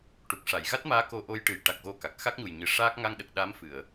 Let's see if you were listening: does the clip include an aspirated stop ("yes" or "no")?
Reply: no